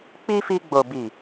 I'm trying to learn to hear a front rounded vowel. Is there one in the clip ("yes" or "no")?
no